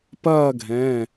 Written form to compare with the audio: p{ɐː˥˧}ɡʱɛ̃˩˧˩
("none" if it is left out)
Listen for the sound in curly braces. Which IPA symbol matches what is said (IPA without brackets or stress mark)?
ɐː˥˧